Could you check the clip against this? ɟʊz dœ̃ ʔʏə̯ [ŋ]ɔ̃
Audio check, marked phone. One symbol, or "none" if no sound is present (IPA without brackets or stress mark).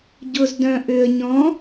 ɲ